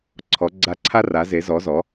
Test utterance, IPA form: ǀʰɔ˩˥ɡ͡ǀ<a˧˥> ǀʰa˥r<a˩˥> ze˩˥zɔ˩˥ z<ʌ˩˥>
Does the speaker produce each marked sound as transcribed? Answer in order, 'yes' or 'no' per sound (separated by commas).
yes, yes, no